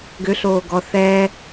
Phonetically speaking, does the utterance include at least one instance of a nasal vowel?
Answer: no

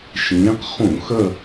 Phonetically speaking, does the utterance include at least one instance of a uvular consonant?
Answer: yes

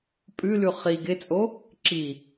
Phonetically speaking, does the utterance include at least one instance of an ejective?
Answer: yes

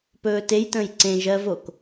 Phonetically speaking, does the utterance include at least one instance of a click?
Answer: yes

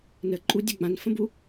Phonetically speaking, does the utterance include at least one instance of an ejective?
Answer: yes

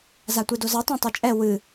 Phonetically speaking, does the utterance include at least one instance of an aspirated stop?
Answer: no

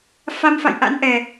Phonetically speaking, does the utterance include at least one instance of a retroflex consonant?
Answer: no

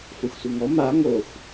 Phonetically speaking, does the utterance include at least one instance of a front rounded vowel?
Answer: no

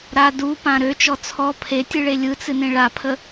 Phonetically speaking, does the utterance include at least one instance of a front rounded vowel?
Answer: yes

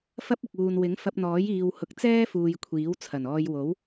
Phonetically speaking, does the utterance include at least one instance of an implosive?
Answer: no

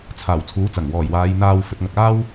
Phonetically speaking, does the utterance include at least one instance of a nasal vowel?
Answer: no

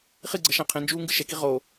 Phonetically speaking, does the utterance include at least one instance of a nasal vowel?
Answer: yes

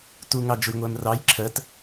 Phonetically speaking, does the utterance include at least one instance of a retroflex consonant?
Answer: no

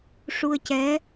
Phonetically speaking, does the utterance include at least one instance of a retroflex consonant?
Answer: yes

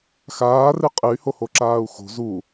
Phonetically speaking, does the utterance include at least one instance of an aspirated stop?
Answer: no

